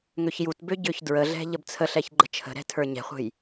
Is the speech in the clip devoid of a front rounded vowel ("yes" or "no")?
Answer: no